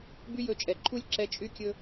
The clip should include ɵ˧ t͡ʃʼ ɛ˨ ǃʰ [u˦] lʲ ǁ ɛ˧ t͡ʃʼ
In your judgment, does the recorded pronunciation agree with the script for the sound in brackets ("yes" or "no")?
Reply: yes